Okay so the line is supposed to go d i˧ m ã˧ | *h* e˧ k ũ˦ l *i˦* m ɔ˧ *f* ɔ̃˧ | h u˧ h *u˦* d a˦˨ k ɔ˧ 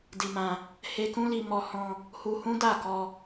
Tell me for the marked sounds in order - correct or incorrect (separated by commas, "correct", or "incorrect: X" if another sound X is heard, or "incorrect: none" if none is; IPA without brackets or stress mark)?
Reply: correct, incorrect: i˧, incorrect: h, incorrect: ũ˦